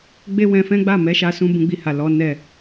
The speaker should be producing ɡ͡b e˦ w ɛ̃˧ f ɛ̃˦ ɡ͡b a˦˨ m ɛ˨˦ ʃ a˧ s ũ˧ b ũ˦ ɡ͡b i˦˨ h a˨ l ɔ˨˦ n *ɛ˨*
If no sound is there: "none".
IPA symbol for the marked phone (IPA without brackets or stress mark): ɛ˦˨